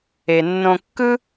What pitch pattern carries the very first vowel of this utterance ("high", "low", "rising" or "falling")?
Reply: low